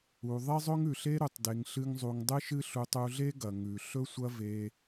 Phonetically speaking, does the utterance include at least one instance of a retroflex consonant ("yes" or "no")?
no